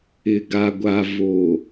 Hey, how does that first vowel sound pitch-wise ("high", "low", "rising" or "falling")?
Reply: low